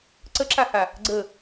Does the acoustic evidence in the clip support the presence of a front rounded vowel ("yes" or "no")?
no